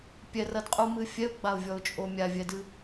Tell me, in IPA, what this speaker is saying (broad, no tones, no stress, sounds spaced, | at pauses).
pʲ ɛ r ɐ d qʼ u m ɨ fʲ ɛ ʊ̯ ɡ͡b a ʊ̯ vʲ ɔ ʊ̯ t͡ʃʼ o mʲ a vʲ ɛ d ɨ